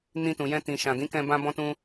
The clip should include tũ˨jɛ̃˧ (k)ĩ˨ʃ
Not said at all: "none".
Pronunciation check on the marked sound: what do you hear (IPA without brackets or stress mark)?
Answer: t